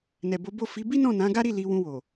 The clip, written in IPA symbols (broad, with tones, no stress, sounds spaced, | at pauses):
n ɛ˨ b o˨˦ b o˦˨ f i˨˦ b i˦ n ɔ̃˦˨ n ã˨˦ ɡ a˦ ɾ i˦˨ l i˧ w ũ˧ w o˨